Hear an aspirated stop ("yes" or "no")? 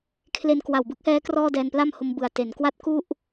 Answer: yes